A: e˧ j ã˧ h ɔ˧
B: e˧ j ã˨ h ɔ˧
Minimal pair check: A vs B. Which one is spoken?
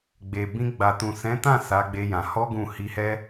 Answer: B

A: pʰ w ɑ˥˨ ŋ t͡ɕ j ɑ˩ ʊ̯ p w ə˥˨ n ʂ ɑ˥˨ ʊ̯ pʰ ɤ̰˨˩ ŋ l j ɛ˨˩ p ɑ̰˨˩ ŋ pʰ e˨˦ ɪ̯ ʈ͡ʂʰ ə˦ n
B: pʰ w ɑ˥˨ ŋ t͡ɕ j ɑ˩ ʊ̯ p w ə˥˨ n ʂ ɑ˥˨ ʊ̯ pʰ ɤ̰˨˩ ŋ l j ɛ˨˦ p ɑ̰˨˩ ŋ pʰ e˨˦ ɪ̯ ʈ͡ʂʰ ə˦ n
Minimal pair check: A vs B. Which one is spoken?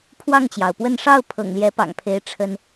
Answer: B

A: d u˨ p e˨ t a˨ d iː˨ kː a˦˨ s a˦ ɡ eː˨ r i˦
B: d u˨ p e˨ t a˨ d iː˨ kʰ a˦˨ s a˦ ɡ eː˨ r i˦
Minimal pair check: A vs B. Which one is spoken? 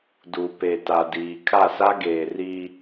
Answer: B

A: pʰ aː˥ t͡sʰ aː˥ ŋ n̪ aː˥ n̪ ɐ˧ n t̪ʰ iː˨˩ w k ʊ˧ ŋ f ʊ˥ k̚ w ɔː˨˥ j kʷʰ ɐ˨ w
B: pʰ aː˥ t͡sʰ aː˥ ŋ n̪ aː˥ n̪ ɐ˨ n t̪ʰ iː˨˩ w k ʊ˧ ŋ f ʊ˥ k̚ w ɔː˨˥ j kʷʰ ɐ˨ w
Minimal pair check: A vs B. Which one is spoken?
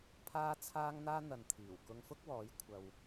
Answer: B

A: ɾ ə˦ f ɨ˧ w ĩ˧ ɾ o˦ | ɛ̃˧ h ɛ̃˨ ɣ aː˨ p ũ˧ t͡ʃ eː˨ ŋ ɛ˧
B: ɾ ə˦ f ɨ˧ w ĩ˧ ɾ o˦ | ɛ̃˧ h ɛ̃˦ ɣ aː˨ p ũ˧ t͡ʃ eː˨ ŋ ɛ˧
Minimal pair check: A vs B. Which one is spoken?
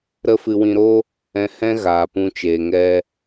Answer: B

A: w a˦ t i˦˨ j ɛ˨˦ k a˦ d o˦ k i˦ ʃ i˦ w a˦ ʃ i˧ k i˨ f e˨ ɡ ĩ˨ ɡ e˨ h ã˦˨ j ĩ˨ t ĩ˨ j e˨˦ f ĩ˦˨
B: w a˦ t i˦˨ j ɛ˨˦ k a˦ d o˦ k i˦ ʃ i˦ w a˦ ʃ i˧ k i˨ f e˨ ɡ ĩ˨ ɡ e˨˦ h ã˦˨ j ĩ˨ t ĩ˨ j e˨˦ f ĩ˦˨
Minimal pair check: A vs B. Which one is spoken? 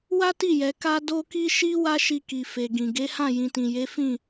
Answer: B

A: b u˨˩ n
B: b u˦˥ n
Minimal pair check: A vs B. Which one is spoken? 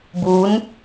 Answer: B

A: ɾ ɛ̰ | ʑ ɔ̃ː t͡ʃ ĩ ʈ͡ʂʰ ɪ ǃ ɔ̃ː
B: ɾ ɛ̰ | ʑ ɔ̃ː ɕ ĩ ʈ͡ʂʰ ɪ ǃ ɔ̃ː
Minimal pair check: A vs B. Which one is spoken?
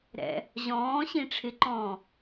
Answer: B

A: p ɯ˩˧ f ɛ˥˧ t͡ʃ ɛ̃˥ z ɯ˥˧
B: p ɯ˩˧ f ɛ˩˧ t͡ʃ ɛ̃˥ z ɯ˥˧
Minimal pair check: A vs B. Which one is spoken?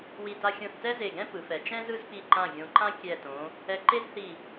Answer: B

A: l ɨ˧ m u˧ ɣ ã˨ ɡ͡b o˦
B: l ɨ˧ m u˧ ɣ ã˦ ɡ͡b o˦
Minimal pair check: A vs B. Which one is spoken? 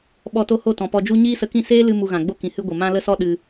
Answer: A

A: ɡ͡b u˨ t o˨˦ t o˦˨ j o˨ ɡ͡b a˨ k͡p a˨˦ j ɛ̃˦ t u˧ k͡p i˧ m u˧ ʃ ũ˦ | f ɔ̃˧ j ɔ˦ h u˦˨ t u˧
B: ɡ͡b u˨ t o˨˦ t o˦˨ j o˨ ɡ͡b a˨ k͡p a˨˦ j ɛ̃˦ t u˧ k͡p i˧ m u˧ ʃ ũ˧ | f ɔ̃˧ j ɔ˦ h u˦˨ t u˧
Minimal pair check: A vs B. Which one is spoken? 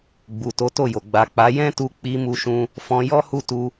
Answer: B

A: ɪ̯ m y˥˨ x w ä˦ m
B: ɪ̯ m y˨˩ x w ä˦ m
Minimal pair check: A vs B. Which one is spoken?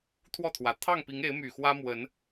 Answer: B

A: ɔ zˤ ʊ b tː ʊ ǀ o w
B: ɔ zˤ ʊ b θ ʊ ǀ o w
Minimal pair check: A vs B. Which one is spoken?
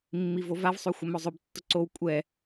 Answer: A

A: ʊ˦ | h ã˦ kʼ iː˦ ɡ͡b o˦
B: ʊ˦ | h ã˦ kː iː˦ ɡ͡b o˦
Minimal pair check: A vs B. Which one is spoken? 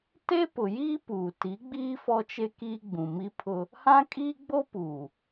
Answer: A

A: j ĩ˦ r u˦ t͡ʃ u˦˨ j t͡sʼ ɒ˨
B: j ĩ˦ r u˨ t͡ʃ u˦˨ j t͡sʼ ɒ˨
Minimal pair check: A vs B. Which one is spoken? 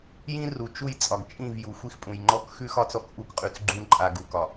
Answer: B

